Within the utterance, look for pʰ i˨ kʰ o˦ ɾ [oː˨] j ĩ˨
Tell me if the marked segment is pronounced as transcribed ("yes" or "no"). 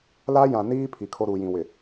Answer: no